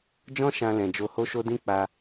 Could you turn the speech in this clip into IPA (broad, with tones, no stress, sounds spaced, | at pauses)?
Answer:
d͡ʒ ɔ̃˦ ʃ ã˧ l ɛ̃˨ d͡ʒ o˧ h o˦ ʃ o˦ d ĩ˦ k͡p a˧